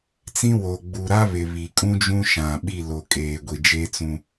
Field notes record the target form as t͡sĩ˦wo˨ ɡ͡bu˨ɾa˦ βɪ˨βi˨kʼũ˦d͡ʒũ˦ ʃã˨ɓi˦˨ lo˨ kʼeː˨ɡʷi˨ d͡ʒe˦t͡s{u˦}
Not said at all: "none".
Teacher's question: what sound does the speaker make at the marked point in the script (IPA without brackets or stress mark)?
ũ˦